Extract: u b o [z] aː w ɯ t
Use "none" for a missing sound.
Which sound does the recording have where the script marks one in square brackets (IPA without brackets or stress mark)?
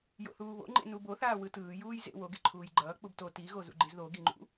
θ